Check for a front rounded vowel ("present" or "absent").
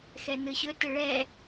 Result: absent